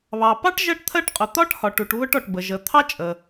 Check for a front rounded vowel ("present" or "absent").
absent